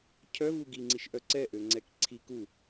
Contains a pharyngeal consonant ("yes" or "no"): no